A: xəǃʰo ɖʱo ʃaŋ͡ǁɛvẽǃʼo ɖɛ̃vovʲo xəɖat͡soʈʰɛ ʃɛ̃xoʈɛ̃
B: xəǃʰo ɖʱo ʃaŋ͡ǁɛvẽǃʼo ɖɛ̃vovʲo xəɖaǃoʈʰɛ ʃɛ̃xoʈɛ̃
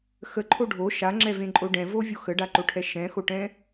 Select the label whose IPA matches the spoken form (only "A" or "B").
B